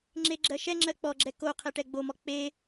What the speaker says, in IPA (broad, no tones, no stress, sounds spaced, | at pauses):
ŋ͡ǁ e ɡ͡ǁ ɜ ʃ ɛ ŋ͡ǁ ɜ k͡p ɔ ɡ͡ǁ ɛ k o qʰ ɛ ʈ ɛ ɡ͡b o m ɔ k͡p e